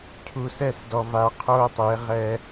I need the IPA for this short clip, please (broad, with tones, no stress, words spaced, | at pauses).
cʰu˨sɛ˦˨sdɔ˨va˨ qʰoː˦tˤe˨˦ʁɛ˦